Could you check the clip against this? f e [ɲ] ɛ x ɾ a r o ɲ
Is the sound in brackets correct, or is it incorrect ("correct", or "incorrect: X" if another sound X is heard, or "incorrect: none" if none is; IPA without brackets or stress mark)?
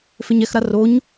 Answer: correct